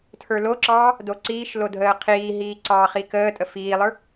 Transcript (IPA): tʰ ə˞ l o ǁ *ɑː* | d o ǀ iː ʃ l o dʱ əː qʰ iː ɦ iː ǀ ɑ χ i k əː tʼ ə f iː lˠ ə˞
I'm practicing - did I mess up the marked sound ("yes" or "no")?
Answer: no